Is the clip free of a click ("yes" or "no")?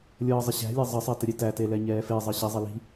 yes